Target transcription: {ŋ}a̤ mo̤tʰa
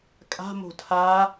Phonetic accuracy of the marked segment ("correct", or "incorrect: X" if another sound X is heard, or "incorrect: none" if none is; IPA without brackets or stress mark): incorrect: kʼ